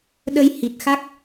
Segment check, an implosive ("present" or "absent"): present